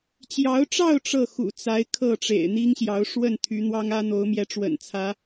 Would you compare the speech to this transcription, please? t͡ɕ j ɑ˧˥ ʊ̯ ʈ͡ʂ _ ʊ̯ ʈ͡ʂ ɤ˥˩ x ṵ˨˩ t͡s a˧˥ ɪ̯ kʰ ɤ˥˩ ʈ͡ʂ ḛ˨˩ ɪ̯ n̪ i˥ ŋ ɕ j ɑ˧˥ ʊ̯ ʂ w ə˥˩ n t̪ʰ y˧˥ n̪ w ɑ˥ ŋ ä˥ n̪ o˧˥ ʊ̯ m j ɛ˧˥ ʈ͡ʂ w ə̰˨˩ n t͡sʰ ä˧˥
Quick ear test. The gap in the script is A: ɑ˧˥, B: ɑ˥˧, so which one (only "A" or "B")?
B